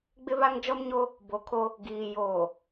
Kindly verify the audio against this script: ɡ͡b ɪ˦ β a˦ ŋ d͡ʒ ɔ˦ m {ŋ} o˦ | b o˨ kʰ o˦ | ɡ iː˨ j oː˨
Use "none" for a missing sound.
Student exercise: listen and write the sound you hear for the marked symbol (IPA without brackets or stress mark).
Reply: ɲ